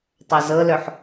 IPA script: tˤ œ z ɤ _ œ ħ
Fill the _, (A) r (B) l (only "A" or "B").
B